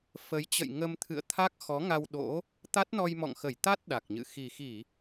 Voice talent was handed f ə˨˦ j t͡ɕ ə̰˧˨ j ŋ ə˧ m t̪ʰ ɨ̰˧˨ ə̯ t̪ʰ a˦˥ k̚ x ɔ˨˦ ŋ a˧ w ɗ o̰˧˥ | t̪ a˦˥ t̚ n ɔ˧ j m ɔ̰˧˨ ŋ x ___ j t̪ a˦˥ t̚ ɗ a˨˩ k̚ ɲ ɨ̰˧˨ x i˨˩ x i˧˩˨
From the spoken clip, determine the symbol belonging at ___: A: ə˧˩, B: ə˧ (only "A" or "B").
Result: A